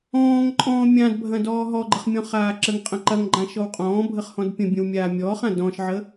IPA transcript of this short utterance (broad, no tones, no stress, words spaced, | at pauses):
ɔ̃ːŋǃʼɔ̃ː mʲãdbʱɐ̃ dɔːɦɔɡ͡ǃəχ mʲɔ̃χaːǁəŋqʼə̃ ǃɐŋ ɡ͡ǃãʃɔwqʼɔ̃ːbʱəχ hɔ̃dpʲə̃bʲə̃w mʲaːmʲɔːχã dɔ̃ʃʕə